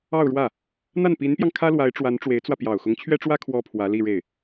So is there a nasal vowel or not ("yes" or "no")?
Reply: no